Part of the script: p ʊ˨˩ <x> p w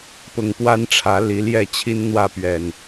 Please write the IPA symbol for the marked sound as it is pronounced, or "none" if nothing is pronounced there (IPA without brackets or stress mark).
ŋ